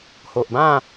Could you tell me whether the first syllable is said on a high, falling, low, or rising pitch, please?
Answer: low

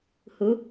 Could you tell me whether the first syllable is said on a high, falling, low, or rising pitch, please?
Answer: rising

